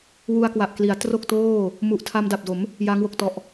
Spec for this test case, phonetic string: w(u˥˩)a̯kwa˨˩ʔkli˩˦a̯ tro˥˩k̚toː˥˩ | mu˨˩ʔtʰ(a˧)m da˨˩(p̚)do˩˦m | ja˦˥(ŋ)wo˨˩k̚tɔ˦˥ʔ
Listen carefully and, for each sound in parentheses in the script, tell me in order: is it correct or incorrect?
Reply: incorrect, correct, correct, correct

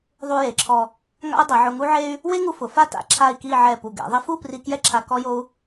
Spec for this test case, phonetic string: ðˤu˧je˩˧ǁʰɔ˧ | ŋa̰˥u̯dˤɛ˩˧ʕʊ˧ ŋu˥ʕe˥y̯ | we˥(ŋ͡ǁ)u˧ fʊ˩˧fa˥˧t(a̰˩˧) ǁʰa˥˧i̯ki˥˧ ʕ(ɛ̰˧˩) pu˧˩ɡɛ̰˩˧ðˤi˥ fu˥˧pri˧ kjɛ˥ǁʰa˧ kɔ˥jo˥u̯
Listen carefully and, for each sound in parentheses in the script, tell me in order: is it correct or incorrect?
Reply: incorrect, incorrect, incorrect

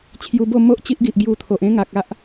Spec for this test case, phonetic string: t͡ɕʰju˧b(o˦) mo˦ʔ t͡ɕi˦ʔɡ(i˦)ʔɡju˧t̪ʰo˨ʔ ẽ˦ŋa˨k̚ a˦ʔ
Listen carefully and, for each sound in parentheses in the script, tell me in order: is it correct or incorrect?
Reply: incorrect, incorrect

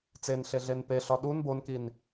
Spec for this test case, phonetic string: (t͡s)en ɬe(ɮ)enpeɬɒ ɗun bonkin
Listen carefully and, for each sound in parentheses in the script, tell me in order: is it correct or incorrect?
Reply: correct, correct

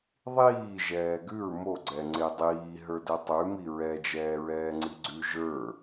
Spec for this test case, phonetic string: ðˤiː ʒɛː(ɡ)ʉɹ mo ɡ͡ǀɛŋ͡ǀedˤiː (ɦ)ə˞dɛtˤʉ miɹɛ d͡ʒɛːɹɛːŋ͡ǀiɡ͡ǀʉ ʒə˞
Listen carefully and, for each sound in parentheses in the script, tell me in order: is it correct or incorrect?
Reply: correct, correct

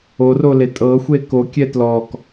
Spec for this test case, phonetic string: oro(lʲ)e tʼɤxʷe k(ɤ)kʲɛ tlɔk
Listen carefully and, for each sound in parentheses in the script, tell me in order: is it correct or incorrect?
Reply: incorrect, incorrect

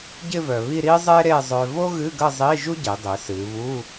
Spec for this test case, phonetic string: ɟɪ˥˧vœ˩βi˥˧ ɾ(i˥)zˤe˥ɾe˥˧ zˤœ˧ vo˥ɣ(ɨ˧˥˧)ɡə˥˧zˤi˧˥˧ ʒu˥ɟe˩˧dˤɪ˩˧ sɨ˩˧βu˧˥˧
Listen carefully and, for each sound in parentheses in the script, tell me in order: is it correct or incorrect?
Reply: correct, correct

